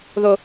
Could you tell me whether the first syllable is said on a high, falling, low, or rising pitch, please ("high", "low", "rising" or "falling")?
low